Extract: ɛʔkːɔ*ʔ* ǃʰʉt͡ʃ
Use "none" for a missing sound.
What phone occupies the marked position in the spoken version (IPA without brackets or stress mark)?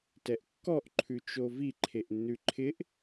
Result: ʔ